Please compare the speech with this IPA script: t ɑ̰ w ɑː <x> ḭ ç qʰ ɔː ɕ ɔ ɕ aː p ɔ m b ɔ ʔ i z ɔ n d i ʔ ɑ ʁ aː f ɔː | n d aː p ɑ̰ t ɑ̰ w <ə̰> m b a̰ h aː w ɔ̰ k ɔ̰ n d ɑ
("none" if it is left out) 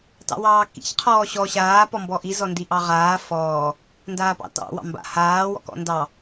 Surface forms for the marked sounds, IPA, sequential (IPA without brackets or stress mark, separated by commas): k, ɑ̰